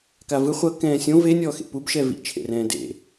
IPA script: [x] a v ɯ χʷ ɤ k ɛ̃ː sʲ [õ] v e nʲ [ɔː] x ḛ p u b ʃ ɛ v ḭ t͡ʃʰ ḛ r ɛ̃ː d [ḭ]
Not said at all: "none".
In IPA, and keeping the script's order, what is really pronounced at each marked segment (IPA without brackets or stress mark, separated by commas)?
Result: k, õ, ɔː, ḛ